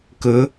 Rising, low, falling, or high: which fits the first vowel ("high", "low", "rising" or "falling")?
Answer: rising